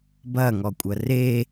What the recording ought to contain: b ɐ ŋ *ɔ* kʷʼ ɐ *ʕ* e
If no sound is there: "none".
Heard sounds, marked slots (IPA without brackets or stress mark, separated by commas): ɔ, r